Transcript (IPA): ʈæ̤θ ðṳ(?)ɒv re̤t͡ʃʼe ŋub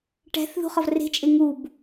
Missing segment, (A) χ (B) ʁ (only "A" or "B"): A